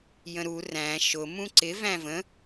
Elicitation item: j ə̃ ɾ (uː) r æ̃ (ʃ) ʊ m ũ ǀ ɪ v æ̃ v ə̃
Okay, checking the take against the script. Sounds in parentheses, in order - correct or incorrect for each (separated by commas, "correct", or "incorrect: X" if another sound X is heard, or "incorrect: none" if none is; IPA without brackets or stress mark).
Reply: incorrect: u, correct